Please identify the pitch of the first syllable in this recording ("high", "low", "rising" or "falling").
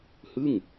falling